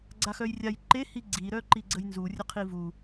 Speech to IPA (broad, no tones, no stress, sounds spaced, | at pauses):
ɡ͡ǀ a x œ j rʲ a j ǃ e h i ɡ͡ǀ i ɾ œ ǃ i ɡ͡ǀ ə j n z u rʲ ə qʰ i v u